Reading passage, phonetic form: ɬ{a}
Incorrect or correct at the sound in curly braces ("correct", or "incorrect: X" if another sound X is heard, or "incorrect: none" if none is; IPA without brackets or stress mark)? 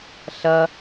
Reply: incorrect: ɐ